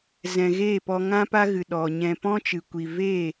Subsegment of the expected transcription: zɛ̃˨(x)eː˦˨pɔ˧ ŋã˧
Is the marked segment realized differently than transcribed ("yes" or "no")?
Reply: yes